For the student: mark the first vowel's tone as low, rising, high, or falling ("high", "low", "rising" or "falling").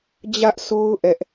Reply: high